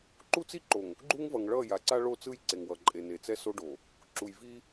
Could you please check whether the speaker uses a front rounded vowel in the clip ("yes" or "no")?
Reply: no